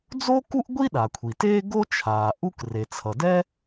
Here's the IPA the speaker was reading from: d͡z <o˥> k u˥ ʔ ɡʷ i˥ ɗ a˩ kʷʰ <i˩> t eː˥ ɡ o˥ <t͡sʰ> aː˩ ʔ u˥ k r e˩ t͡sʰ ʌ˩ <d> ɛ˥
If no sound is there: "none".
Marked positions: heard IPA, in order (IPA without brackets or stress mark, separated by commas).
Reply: o˥, i˩, t͡ʃʰ, d